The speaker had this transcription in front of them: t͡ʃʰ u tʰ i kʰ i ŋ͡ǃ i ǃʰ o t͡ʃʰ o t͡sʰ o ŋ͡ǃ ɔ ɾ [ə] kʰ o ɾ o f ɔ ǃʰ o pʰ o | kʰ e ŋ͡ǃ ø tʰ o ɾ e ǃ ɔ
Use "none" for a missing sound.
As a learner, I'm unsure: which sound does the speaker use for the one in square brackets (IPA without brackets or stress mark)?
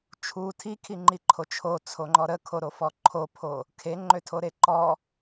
ə